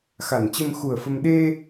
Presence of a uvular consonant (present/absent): absent